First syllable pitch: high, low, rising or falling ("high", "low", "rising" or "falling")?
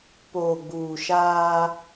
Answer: low